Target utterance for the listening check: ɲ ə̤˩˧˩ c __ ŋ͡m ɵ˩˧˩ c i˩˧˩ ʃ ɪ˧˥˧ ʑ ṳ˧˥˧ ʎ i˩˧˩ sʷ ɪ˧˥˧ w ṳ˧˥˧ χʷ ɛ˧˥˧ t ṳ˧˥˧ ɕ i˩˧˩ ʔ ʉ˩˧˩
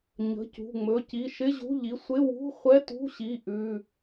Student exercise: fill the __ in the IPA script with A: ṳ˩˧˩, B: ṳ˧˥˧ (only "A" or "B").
A